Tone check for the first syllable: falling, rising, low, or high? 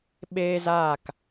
high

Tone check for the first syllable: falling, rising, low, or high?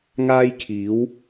high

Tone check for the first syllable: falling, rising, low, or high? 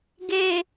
low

